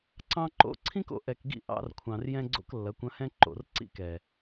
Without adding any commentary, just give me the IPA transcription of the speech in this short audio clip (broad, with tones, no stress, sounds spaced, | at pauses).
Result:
ǀ ɑ̃˦ ǃ o̰˦ ǀʰ ĩ˦ k o̰˨ ʔ ɛ˨ k ɡ ḭ˦ ʔ ɑ̰˦ r kʷʰ ɑ̃˨ r j ɛ̃˦ ɡ͡ǀ o̰˦ k lː ɐ˨˦ kʷ ɐ̃˦ h ɛ̃˦ ǃ o̰˨ r ǀ ḭ˦ k ɛ˨